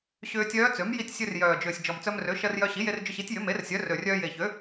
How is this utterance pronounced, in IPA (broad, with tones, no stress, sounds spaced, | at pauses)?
ɕ ʏː˧ tʲ œː˧˥ t͡s ø˩˥ m j i˧ tʲ sʲ ø˧ r j œː˨˩ d͡ʒ ʏː˨˩ sʲ d͡ʒ ɔ˨˩ m t͡s œ˧ m r ø˩˥ ʃ ɜ˧ r j œ˧ ɕ i˩˥ j e˧ r d͡ʒ ʏ˧ ɕ i˩˥ tʲ j ʏ˩˥ m e˩˥ r sʲ œ˩˥ r ø˨˩ rʲ œː˧ j e˨˩ ç ø˩˥